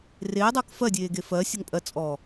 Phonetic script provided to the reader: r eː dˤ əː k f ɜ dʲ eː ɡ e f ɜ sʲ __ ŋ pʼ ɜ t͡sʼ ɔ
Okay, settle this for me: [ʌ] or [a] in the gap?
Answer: ʌ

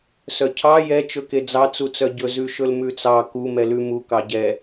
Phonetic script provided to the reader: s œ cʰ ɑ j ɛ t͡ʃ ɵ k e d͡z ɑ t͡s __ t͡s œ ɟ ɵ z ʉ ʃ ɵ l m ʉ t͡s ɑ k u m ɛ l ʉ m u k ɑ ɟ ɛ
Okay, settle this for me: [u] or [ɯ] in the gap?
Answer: u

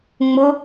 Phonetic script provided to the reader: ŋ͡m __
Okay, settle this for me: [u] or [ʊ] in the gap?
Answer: ʊ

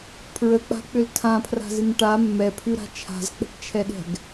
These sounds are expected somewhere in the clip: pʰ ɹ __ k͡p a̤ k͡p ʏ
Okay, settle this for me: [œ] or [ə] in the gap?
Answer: ə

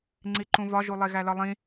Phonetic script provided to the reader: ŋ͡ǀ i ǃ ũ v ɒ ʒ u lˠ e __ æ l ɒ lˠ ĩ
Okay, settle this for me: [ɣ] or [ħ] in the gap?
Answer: ɣ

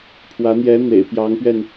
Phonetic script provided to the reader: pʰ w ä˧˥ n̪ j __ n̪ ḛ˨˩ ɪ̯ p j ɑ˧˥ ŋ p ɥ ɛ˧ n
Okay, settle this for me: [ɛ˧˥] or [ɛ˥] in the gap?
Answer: ɛ˧˥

